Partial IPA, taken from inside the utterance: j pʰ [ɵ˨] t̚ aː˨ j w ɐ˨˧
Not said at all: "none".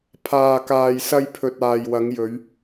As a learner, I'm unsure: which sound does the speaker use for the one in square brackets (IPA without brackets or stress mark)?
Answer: ɵ˨